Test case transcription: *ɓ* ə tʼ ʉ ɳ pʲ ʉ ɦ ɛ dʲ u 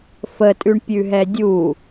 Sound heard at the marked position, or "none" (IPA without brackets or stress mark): f